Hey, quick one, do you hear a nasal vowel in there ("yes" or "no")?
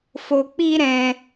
yes